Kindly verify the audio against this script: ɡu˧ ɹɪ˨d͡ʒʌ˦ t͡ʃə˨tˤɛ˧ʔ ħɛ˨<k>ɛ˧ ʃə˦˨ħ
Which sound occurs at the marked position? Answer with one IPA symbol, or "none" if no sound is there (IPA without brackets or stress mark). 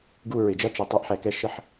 k